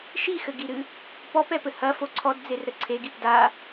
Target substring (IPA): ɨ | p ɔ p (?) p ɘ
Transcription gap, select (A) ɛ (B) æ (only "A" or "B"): A